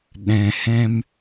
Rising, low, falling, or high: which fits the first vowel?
low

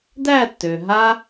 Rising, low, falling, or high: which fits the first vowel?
falling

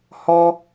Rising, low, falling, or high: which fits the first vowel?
high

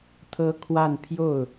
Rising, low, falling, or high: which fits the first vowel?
high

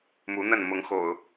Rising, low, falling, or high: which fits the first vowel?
rising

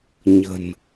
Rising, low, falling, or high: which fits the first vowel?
low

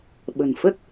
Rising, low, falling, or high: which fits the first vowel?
low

